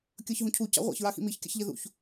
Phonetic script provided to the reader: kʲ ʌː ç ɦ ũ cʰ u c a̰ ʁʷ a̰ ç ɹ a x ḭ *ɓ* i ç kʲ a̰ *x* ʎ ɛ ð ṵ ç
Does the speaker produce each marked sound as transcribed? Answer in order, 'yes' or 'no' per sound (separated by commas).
no, no